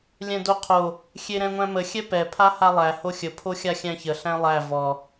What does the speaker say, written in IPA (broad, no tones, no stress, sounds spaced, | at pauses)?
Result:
lʲ ɛ̃ d o qʰ o | xʲ e ɾ ɛ̃ ŋʷ æ̃ m ə xʲ ɛ p ɛ pʰ a h a lˠ æ h o xʲ ə pʰ o xʲ a xʲ æ̃ ç ə ɬ æ̃ lˠ æ v ɔ